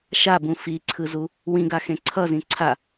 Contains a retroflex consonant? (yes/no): no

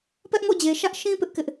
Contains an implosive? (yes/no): no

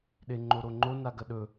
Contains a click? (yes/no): yes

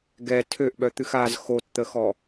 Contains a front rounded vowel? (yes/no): yes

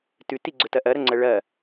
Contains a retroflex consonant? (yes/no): yes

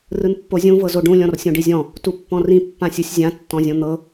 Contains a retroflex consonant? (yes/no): yes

